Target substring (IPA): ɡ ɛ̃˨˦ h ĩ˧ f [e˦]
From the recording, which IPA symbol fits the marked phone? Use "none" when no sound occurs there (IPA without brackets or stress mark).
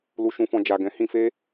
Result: e˦